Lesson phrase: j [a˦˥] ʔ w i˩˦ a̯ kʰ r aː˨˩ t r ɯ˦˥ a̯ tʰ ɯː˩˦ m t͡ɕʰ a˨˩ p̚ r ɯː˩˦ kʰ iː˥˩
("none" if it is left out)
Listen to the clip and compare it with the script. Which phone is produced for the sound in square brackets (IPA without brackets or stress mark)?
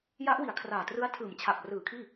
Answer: a˦˥